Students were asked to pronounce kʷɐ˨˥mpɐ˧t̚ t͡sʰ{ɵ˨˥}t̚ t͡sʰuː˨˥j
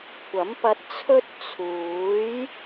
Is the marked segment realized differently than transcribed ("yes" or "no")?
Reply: yes